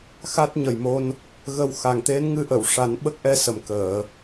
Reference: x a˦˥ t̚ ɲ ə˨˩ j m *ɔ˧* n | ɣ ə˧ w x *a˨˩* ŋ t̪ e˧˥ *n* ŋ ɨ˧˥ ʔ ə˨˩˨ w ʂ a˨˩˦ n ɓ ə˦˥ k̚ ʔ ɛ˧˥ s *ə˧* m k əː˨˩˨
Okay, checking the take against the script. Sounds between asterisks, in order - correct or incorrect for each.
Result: incorrect, correct, correct, incorrect

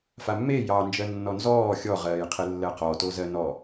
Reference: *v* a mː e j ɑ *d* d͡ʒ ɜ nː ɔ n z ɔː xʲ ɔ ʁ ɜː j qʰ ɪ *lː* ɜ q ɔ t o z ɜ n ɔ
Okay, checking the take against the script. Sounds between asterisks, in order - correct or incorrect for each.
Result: incorrect, incorrect, correct

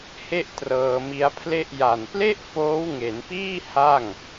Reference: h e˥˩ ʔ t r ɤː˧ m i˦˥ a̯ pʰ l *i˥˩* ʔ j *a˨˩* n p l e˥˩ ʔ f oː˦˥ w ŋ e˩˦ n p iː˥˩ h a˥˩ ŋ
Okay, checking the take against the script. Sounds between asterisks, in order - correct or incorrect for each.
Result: incorrect, correct

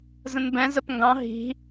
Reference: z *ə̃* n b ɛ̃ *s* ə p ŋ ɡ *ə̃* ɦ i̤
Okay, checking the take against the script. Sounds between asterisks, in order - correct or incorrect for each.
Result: correct, incorrect, incorrect

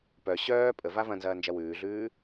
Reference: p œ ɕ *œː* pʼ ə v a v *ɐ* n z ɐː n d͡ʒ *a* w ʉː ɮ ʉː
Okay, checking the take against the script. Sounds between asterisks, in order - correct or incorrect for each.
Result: correct, incorrect, incorrect

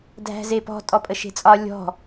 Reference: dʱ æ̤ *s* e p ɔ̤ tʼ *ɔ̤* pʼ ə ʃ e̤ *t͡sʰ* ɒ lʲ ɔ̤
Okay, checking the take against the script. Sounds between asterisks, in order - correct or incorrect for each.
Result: incorrect, incorrect, incorrect

